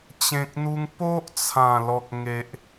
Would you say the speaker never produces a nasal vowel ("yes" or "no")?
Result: no